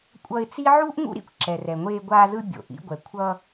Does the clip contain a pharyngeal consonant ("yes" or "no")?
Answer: yes